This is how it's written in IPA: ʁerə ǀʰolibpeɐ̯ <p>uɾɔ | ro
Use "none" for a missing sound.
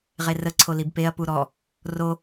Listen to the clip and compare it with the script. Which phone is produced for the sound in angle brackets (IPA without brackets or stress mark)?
p